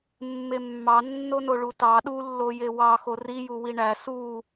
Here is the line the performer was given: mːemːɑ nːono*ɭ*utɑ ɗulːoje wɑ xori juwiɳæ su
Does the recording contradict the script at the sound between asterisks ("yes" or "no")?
no